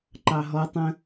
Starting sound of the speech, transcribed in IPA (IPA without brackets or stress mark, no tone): ǃ